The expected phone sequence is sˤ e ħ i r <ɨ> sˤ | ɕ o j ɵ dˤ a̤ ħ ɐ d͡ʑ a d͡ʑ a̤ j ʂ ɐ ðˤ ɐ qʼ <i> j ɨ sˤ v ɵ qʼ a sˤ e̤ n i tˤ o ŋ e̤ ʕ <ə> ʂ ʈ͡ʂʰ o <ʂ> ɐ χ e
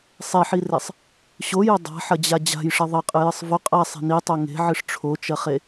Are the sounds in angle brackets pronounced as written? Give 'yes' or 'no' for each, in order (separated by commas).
no, no, no, no